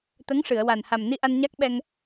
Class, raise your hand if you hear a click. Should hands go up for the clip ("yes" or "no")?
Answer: no